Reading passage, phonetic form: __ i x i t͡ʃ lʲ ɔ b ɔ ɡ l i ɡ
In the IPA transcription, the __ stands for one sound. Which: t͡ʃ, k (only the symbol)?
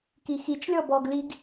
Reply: k